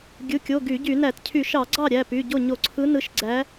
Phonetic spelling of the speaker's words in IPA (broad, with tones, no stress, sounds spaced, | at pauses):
ɡʲ ɯ˩˧˩ kʲ o˩˧˩ ɡ y˧˩˧ ɟ y˧˩˧ n æ˧˩˧ t cʰ y˧˩˧ ʃ ɑ˧˩˧ ɡ͡ǀ ɑ˥˩ ɾʲ æ˩˧˩ p y˩˧˩ ɟ o˥˩ ɲ o˧˩˧ ǀʰ ɯ˨˦ n ɯ˨˦ ʃ ɡ͡ǀ æ˨˦